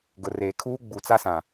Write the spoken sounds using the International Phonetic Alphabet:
ɡ ʊ˨ r eː˨ kʰ uː˦ ɡ͡b u˨ t͡s a˦ s ã˨

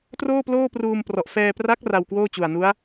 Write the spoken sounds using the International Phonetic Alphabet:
t r oː˥˩ p l oː˥˩ p r uː˧ m p r ɔ˨˩ ʔ f ɛː˧ p r a˦˥ k̚ r a˧ w k w oː˥˩ t͡ɕ u˨˩ a̯ n u˦˥ a̯

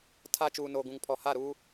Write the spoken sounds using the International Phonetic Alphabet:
tʰ a˦ t͡ʃ uː˨ n oː˨ ɡ ũ˨ ŋ pʰ ɔ˨ h a˦˨ ɾ uː˦

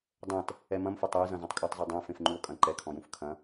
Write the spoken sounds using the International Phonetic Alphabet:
dˤ ɛ̃ t | ɛ m ɐ̃ m f ɘ tˤ ɛ j z ɐ̃ z ɐ̃ tˤ kʼ a tˤ zˤ u dˤ ɛ̃ f ẽ f ŋ͡ǃ u o̯ kʼ ɐ̃ ǃ ɛ kʰ ɔ̃ j ũ f kʰ ɐ̃

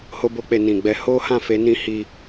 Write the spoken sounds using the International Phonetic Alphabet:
h o˧ b o˧ k͡p e˨ n ĩ˨ ɡ͡b ɛ˧ h o˦ h ã˦˨ f e˨˦ n ĩ˧ h i˧

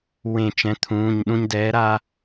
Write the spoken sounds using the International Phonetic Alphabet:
w ẽ˧˩ t͡ʃ ɛ̃˩˥ t̪ʰ ũː˩˧˩ ɲ ɗ ũ˧ ɲ d ɛː˩˥ ɾ aː˧

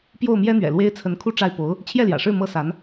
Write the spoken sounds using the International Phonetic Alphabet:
p j o˥˩ ʊ̯ m j ɛ˥ n̪ ɥ ɛ̰˨˩ l w e˥ ɪ̯ t͡sʰ ə˧˥ n kʰ u˥˧ ʈ͡ʂ a˥˩ ɪ̯ p o˧˥ ʊ̯ | t͡ɕʰ j ɛ˥˩ l j ä̰˨˩ ʂ ɻ̩˥˩ m ɤ˥ s a˧˥ n

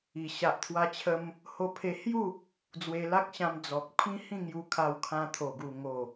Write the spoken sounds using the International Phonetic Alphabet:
i˨˩ ɕ a˨ ʔ t̪ʰ w a˧ t͡ɕʰ ə˧ m | h o˧ pʰ e˧ h j u˥˧ | d͡z w e˧ l a˦ k̚ ɕ ã˧ m d͡z ɔ˨ k̚ pʰ ĩ˦ h ĩ˥˧ ŋ j u˧ kʰ a˧ w kʰ ã˧ t̪ʰ o˨˩ ɡ u˨˩ ŋ o˨˩

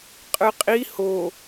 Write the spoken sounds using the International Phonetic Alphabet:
qʼ ɯ qʼ i h o

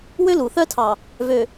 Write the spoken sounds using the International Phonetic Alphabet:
w ø˦ l u˨ θ œ˦ tʰ ɑ˨ | v ø˨

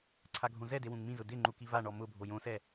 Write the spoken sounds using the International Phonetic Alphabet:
ǀʰ a ɡʱ õ z ɛ d e w ũ ŋ m ĩ z ʊ d ɪ ŋ͡ǃ u k i v a ɳ ɔ m ʊ bʱ o j õ s ɛ

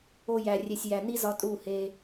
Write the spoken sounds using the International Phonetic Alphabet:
o˧ j æ˨ rʲ e˨ sʲ j æ˨ n i˦ z ɒ˧ tʼ u˦˨ h e˧

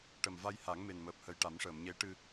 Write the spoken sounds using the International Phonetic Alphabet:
ʈ ə˨˩ m v a˧ j h a˨˩˦ ŋ m e˨˩ n m əː˨˩ p̚ h ə˨˩ j ʈ a˨˩˦ m ʂ əː˨˩˨ m ɲ e˧˥ ʈ ɨ˧

